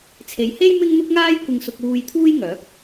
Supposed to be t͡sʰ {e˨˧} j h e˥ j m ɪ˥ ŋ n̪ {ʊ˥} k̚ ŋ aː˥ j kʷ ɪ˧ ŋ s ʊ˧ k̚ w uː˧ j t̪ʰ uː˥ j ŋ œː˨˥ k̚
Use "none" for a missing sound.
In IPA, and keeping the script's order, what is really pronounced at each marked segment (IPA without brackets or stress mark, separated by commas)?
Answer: e˨˧, ʊ˥